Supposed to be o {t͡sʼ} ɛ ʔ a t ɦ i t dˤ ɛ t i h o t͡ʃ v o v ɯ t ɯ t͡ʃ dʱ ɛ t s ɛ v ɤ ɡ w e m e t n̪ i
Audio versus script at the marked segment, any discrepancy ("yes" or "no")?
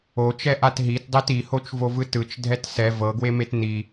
yes